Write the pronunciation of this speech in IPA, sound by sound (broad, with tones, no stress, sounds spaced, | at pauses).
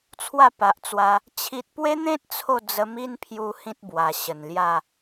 t͡sʰ w a˥˧ p a˨ ʔ t͡s w a˧ | t͡ɕʰ i˨ t̚ p w e˦ n̪ ẽ˦ t̚ t͡sʰ o˥˧ d͡z ə˧ m i˦ n pʰ j u˧ h ĩ˦ t̚ b w a˨˩ ɕ ə˨˩ n l j a˥˧